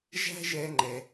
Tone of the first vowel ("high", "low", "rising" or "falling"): high